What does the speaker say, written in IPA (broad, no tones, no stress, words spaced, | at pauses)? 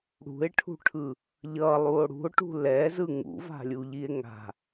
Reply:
ɽṳe̯ʈʰṳʈʰɯ | ʎʌlˠuo̯ ɽṳo̯ʈṳ lɛzɯ ŋṵva̤lʲuʎie̯ ŋa̤